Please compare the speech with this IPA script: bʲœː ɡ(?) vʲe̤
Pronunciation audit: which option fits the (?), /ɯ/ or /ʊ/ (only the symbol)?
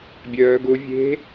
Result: ʊ